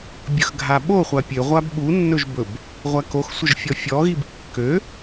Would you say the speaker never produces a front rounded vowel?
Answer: no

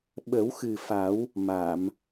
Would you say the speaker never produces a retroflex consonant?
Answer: yes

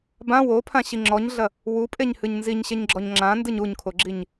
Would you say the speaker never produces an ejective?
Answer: no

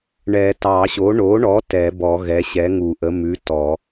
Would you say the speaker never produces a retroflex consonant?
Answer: no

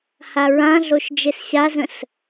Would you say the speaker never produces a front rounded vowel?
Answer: yes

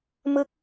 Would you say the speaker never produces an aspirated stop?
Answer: yes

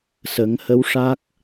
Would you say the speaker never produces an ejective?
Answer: yes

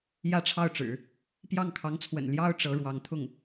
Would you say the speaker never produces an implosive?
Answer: yes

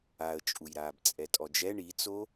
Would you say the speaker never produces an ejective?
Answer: no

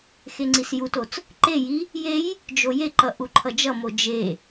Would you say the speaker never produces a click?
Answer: no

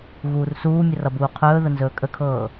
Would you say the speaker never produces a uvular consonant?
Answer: no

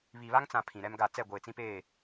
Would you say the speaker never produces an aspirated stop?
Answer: no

